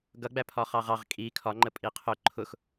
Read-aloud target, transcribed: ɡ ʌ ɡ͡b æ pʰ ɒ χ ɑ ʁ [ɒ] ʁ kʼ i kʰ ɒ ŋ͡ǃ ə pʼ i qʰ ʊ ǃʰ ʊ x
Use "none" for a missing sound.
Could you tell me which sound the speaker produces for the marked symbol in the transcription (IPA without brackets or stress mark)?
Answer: ɑ